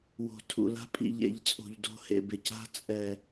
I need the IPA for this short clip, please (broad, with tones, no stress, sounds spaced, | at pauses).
w o̤˨ tʰ ṵ˨ l a̤˦ pʼ ḭ˨ ʎ ḛ˨ ʎ t͡sʼ o̤˨ ʎ d o̤˦ h ḛ˨ b ɪ˨ c a̤˦ t͡sʼ ɛ˨